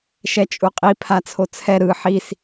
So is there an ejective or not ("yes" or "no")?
yes